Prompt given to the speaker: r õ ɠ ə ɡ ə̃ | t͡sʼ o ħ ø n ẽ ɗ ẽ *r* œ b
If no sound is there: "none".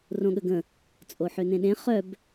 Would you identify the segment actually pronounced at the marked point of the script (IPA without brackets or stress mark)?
χ